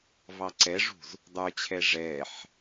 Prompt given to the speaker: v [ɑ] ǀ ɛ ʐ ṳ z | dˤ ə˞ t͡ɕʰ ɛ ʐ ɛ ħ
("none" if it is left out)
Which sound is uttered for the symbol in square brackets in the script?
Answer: ɑ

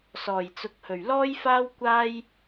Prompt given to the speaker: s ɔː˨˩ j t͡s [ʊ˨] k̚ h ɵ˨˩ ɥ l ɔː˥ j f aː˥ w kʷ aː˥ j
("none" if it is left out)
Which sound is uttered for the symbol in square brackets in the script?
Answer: ʊ˨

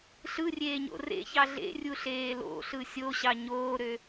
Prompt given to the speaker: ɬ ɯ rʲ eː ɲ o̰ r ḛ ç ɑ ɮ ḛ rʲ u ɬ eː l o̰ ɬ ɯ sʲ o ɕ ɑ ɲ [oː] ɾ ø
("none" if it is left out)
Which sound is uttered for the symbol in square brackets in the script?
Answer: oː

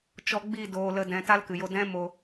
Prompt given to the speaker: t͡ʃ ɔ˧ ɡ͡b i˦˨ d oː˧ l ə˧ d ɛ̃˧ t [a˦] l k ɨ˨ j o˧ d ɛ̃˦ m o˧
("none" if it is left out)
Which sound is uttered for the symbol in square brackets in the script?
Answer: a˦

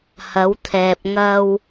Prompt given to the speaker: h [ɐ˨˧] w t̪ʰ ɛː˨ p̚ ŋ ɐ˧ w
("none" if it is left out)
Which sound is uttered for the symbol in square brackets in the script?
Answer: ɐ˨˧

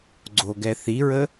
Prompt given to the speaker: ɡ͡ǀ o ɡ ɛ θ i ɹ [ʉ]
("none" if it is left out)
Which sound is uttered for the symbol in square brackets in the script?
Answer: ə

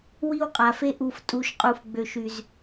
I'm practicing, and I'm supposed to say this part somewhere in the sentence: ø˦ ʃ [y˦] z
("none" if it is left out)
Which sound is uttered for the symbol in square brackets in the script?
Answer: y˦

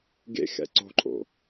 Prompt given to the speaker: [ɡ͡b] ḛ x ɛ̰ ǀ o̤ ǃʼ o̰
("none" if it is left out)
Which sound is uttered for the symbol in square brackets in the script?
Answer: ɡ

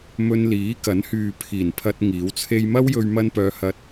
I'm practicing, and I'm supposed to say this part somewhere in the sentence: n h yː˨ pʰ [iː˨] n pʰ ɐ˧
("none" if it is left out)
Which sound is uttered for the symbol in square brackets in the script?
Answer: iː˨˩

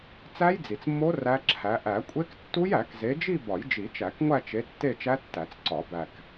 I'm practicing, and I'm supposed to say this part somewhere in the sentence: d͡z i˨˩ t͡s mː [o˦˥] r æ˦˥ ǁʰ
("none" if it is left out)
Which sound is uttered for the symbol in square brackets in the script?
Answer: o˦˥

